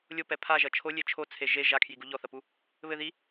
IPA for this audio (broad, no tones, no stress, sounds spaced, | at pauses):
lʲ o p ɛ pʰ a ʒ ɐ t͡ʃʰ o lʲ e t͡ʃʰ o t͡sʰ e ʒ e ʒ a kʰ j i ɡ u ʎ ɔ θ ɐ p u | β ɘ ð i